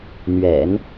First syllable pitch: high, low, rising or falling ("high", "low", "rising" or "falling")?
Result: low